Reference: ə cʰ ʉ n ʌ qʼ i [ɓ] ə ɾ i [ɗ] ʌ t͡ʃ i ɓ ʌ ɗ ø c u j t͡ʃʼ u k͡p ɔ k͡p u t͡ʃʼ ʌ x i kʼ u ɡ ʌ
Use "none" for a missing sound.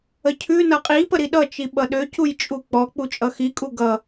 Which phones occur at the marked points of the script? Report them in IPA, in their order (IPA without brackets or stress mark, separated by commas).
p, ɗ